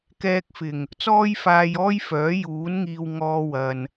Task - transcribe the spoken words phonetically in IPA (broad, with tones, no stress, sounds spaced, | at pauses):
k ɛː˧ k̚ f ɪ˨˩ ŋ | t͡s ɔː˥ j f aː˧ j ɔː˥ j f œː˨˥ j uː˨˥ n ŋ iː˧ w ŋ ɔː˧ w ɐ˨ n